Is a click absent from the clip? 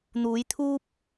yes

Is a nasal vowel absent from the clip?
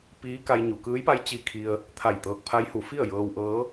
yes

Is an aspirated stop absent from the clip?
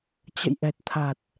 no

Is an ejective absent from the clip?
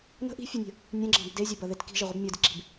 yes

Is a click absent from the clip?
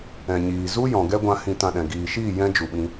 yes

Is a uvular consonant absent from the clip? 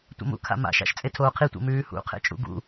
no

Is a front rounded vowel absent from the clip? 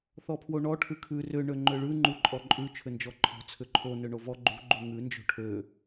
no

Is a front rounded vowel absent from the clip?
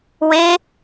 yes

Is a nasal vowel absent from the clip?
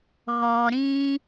no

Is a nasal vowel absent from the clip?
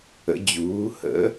yes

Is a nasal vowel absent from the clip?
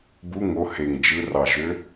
yes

